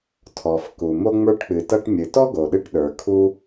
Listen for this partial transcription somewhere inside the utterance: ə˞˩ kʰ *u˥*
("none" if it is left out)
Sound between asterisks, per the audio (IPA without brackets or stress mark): u˧